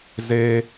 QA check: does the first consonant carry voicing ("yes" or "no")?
yes